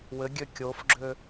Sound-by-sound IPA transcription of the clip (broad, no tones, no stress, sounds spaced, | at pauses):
w ɘ ɡʲ ø kʲ o f ɡ͡ǁ ø